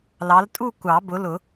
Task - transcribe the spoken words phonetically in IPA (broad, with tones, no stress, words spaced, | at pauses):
lɑ˨˦ltʼu˥˧ kʷɑ˨˩˦bʊ˨˦lʊ˨˩˦